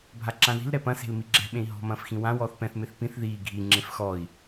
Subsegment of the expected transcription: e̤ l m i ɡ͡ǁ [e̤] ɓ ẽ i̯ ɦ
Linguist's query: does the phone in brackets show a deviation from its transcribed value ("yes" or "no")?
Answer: yes